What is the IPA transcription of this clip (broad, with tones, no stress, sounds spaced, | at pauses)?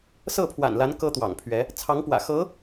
s ɤ˥˩ pʰ w a̰˨˩ n l a˧˥ n k ɤ˥ t̪ w ɑ̰˨˩ ŋ pʰ ɥ ɛ˧˥ | t͡sʰ ɑ˧˥ ŋ p w ä̰˨˩ x ɤ˧˥